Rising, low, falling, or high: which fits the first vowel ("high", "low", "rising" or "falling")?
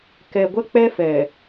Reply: low